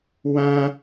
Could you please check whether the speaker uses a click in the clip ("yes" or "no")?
no